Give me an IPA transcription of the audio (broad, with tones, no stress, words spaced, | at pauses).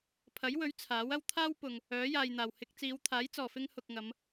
pʰɐ˨˥jwɵ˨˥ɥ t͡sʰaː˨˥wɐ˥w t̪ʰaː˥wpʊ˨ŋ | œː˨˥jaː˨jn̪aː˨˩whɪ˧k̚ t͡siː˨˧wt̪ʰaː˨˥jt͡sɔː˨˩ fɪ˧ŋ hʊ˨k̚ŋɐ˨˧m